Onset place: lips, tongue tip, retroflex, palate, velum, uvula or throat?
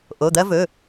throat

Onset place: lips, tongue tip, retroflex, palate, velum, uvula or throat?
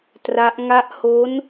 tongue tip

